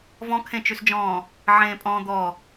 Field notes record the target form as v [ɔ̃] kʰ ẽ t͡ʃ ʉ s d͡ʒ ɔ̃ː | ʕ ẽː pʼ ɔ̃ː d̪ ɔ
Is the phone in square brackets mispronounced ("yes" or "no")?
no